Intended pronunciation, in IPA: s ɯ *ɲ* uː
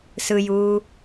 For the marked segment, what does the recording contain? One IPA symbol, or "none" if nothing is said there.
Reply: j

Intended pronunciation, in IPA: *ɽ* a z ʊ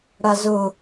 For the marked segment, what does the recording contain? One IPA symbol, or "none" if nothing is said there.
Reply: ɽ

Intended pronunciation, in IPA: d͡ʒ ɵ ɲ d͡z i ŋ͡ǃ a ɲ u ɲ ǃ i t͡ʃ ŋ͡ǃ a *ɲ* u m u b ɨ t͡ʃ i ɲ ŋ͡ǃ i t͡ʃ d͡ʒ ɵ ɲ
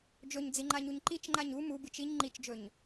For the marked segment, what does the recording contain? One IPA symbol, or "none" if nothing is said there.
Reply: ɲ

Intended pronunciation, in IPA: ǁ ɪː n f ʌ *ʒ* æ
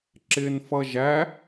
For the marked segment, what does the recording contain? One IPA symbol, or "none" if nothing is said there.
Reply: ʒ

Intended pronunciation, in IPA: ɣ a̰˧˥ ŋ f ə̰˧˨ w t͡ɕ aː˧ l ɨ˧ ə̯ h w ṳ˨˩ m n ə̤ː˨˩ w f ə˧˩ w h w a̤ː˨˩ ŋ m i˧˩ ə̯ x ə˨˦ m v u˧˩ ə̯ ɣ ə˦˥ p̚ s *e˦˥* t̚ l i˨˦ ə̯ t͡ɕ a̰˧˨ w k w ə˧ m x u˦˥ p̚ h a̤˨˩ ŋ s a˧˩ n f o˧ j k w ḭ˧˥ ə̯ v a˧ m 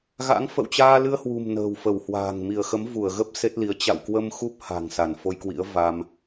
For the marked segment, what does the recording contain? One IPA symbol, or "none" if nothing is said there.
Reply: e˦˥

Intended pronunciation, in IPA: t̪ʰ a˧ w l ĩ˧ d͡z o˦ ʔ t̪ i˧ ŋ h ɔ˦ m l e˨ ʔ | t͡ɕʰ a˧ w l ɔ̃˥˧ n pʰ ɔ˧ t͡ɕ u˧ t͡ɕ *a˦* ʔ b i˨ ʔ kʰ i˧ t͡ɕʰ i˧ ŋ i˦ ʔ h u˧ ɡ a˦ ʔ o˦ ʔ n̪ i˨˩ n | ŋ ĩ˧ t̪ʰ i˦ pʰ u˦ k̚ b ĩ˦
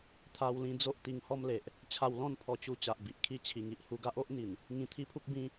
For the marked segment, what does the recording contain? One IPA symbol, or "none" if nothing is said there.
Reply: a˨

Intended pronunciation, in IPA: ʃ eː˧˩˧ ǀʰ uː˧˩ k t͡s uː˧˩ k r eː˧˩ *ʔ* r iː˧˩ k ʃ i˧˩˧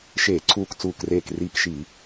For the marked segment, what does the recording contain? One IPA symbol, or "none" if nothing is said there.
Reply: k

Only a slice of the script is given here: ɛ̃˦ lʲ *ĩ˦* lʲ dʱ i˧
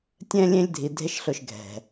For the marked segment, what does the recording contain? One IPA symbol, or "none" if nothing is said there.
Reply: ẽ˦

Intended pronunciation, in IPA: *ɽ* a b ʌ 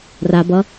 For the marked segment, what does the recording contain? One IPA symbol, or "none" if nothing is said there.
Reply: r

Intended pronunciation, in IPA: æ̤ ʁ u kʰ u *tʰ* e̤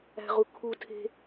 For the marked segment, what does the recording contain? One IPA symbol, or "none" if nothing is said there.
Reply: tʰ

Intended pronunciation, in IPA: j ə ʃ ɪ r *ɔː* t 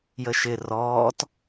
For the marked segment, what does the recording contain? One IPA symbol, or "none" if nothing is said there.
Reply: ɔː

